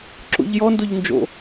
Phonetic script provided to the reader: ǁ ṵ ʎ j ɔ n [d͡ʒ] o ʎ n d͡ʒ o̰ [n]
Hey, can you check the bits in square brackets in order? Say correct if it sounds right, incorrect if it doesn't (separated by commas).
incorrect, incorrect